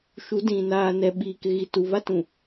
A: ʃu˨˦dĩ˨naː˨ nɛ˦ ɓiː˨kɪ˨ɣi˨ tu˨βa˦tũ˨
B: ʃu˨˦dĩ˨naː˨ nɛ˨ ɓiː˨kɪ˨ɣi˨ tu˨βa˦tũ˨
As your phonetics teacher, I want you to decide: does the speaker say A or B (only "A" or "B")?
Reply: B